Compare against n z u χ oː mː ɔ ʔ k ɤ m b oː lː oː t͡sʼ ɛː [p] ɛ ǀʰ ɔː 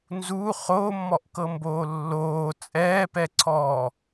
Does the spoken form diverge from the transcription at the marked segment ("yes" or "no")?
no